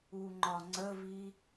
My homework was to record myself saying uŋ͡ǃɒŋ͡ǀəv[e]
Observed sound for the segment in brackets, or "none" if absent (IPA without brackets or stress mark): i